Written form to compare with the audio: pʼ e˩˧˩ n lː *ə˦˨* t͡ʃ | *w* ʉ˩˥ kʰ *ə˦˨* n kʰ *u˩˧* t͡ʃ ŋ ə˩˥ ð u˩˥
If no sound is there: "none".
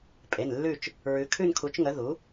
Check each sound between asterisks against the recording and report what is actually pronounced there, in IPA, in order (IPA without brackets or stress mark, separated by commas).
ʉ˦˨, ɹ, ʉ˦˨, u˩˥